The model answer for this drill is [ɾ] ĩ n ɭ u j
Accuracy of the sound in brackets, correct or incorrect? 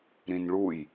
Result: correct